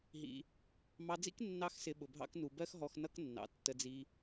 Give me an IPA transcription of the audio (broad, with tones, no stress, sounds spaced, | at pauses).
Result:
ɦ ḭ˧ | m ɑ˧ d͡z ḭ˦ k nː ɑ˦ x s ɪ˧ ɓ ʊ˨ bʱ ɑ̰˧ k n u˨ b ɜ˦ x ɦ ɔ˧ x n ʌ˦ k nː ɑ̰˨ tː ə˧ d͡z i˧